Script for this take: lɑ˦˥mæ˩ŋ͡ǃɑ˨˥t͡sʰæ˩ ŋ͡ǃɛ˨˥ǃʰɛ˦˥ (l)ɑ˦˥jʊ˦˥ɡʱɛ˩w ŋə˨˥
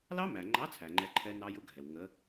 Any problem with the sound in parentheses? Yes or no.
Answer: yes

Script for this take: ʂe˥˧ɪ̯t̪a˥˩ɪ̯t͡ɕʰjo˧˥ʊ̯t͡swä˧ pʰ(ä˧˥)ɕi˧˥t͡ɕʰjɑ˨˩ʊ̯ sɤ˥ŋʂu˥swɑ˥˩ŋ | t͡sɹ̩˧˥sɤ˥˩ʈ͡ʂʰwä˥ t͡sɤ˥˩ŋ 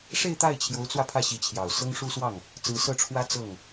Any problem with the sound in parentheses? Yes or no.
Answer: yes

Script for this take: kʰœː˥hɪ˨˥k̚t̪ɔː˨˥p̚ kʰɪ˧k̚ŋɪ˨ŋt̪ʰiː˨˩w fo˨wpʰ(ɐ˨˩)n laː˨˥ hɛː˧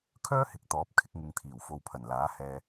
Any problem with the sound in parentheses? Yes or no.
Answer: no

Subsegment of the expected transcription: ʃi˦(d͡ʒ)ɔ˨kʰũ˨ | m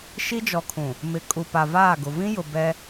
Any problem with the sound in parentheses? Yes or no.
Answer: no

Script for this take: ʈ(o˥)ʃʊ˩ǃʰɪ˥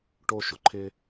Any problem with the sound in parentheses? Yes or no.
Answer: no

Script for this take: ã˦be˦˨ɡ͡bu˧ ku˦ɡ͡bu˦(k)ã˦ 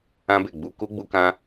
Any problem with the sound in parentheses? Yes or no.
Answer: no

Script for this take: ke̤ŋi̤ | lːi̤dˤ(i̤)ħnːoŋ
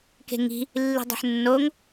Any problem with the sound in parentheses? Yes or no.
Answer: yes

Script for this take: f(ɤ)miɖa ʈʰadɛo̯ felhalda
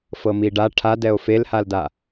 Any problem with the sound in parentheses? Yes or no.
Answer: no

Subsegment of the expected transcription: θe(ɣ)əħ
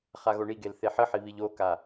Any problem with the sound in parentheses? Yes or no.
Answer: yes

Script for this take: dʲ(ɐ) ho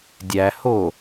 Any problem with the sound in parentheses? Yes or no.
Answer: yes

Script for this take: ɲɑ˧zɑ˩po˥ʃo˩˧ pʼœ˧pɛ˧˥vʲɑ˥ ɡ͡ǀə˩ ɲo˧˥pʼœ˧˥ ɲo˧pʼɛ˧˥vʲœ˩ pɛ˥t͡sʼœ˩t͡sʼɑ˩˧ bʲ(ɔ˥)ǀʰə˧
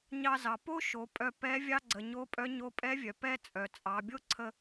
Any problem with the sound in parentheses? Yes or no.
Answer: yes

